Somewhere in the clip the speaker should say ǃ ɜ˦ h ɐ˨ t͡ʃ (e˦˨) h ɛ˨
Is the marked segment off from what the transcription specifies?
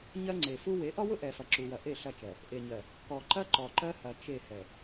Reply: no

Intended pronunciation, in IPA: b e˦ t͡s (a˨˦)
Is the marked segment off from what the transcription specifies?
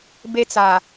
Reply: yes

